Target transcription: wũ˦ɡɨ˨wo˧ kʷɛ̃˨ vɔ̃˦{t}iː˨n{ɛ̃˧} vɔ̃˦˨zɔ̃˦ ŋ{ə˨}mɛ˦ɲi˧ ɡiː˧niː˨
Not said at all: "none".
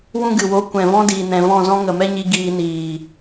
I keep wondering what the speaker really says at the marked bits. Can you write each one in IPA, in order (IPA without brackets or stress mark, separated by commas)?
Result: d, ɛ̃˨, ə˨